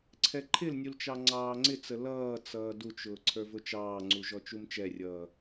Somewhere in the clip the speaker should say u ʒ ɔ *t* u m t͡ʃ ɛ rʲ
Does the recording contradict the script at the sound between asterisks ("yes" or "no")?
yes